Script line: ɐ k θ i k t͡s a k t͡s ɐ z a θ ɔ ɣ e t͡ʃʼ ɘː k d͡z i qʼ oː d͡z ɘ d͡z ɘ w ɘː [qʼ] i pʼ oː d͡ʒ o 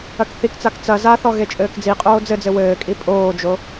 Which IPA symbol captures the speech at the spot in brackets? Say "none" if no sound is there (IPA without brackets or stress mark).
kʼ